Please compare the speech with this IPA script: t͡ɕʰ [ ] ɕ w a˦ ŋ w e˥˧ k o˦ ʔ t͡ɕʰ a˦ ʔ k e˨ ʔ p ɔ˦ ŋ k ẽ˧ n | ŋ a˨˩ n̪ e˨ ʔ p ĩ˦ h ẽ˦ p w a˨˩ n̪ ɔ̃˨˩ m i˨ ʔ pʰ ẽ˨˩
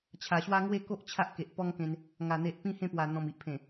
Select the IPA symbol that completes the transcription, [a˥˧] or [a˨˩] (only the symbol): a˨˩